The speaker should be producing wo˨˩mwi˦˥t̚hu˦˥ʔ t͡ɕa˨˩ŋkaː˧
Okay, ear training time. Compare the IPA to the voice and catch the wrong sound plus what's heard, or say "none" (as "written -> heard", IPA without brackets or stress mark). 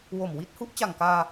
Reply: none